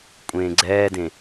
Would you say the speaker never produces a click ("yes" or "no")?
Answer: no